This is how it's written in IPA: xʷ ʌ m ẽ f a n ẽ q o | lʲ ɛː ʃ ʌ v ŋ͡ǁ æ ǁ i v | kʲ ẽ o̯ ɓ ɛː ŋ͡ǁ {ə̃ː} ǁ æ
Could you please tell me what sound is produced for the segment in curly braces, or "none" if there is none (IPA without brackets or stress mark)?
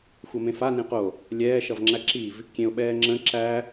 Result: ə̃